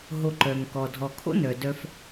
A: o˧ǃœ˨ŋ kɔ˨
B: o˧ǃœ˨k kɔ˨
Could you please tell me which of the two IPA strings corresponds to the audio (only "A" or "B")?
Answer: A